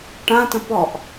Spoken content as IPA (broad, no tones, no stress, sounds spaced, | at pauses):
ʈ ã t ə̃ p ɔ ʔ